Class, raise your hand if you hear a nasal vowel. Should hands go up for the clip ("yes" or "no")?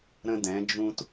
yes